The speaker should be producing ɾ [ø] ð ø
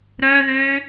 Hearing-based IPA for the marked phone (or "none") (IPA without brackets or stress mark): œ